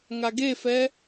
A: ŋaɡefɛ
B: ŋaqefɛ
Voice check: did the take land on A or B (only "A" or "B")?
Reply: A